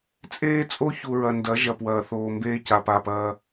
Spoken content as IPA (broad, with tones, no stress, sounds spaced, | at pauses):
t͡sʼ eː˦ t͡sʼ o˦ ç u˨ ɹ ɐ˨ n d ɐ˨˦ ʒ ɐ˨ p w ɐː˨ θ oː˨ m b eː˦ c a˨ p aː˨ p ɐː˨